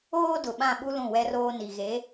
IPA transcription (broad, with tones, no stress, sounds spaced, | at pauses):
oː˦ d ʊ˨ ɓ ã˦˨ ɓ u˦ l ũ˦˨ w ɛ˦ r oː˦ n i˨ ɣ e˨˦